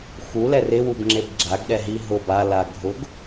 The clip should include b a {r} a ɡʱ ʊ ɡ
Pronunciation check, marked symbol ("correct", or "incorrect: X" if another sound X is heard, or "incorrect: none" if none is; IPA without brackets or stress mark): incorrect: l